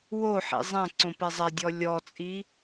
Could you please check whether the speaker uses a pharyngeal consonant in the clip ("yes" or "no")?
yes